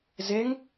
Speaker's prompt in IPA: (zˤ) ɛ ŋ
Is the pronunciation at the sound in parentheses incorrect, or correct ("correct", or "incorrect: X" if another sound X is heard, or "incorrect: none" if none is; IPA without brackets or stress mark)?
incorrect: z